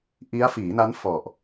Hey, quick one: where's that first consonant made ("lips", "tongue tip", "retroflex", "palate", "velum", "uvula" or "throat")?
throat